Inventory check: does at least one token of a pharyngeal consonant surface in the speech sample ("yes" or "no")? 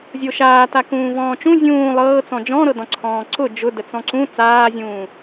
no